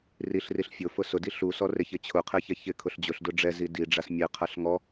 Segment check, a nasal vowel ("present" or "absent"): absent